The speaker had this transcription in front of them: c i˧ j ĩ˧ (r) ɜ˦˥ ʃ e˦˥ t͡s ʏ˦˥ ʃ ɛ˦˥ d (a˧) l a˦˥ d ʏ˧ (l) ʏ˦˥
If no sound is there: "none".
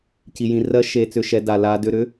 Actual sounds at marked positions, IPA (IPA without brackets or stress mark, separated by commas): r, a˧, ɾ